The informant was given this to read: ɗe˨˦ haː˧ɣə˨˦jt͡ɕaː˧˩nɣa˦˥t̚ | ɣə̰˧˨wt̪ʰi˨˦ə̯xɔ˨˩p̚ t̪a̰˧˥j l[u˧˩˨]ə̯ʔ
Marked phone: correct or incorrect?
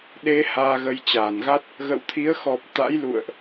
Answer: incorrect